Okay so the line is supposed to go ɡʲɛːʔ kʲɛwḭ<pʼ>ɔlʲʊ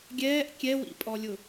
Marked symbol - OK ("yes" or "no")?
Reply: yes